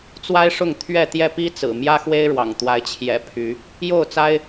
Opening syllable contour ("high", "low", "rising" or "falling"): high